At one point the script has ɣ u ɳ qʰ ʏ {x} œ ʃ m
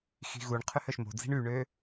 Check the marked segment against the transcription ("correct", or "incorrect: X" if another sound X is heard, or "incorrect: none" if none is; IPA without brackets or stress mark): incorrect: h